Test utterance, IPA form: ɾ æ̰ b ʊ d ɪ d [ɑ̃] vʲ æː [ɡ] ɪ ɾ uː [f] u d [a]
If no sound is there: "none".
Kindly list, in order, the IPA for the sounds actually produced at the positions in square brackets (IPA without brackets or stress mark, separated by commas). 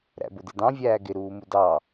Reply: ɑ̃, ɡ, m, ɑ